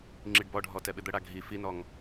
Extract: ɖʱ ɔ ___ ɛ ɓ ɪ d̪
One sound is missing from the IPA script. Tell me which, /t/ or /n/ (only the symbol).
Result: t